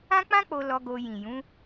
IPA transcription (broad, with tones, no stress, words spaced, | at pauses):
ã˦k͡pã˦k͡po˧ lɔ˧ɡo˧ jĩ˨jũ˨˦